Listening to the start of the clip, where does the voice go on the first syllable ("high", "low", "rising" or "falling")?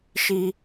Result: high